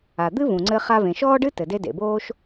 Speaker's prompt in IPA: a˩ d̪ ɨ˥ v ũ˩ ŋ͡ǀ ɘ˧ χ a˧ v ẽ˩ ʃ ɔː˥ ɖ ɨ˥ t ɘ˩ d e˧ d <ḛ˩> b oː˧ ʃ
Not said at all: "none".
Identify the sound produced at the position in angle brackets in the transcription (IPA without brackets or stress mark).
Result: ḛ˩